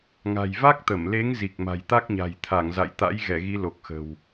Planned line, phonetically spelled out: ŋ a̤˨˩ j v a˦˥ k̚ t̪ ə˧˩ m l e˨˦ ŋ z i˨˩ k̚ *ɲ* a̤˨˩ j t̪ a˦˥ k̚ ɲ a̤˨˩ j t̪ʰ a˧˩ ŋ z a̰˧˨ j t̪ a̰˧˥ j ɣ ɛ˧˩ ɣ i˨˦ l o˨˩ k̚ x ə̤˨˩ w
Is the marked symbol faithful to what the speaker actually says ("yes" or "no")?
no